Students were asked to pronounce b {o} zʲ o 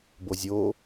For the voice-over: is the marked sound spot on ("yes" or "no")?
yes